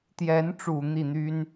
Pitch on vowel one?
rising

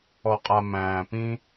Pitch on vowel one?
low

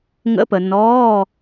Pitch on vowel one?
rising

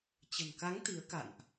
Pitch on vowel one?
low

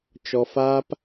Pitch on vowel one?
high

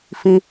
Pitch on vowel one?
high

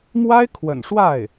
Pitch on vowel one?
high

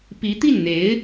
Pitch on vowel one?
rising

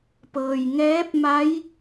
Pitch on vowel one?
low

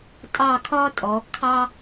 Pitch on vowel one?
falling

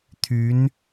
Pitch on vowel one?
rising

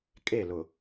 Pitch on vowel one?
falling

